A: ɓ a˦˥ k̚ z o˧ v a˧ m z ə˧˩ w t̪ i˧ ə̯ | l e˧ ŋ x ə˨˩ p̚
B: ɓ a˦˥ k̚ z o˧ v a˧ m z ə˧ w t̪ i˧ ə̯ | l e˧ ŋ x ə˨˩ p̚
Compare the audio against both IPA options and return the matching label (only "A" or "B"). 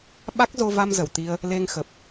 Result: A